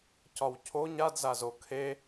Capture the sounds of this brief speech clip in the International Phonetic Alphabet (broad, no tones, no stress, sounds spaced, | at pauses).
c ɒ w cʰ o ɲ a d z a z o kʰ e